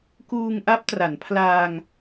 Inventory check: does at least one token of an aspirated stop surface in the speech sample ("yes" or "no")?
yes